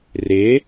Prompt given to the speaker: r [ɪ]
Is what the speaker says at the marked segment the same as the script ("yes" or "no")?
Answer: yes